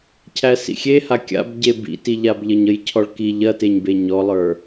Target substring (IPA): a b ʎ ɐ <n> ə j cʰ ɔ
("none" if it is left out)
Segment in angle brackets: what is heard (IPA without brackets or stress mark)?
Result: ɲ